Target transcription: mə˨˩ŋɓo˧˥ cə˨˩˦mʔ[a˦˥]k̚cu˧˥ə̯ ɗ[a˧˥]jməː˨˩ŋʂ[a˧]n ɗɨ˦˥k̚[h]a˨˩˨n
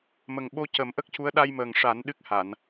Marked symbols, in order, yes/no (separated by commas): no, no, no, yes